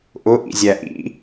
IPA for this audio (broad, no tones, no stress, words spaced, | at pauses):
ʔʊʔḭzʲæ ʔḭ